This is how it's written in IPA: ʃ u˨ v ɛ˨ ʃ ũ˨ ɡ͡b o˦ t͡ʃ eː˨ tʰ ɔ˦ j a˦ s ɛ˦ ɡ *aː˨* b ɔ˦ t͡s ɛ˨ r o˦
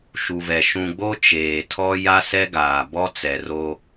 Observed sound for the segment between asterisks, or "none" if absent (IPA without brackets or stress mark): aː˨